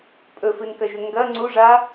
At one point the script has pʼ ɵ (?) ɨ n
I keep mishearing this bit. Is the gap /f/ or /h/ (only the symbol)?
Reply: f